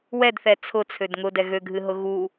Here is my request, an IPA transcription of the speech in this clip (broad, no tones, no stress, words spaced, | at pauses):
wɛdθɛ t͡sʰʊt͡sʰød ŋʊdɛ ɣøɡʱɨɦʊ ɣu